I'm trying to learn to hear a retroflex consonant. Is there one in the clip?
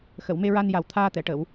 yes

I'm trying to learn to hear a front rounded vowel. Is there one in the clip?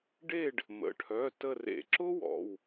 yes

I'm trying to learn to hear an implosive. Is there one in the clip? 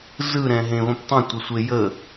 no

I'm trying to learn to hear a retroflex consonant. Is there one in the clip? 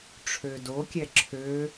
yes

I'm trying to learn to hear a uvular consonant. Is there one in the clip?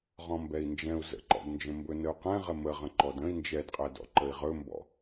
yes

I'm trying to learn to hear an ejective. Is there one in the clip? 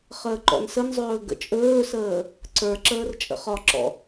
yes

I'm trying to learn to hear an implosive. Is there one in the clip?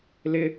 no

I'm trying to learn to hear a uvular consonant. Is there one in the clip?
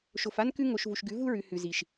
no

